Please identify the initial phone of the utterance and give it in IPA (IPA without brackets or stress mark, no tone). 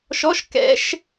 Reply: ʃ